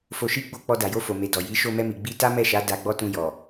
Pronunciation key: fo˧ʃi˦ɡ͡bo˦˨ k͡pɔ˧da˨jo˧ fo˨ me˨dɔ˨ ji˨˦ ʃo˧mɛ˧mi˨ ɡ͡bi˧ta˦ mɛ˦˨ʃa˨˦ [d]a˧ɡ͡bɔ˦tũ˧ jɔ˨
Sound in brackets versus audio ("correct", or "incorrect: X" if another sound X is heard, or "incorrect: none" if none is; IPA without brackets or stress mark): correct